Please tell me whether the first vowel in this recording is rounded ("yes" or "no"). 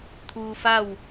yes